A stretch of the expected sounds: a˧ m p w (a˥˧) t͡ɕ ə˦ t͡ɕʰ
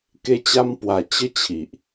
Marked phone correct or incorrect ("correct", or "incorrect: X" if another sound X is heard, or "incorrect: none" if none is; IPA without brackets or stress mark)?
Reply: incorrect: a˨˩